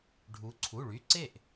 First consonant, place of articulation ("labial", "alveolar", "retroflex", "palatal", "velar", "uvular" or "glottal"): retroflex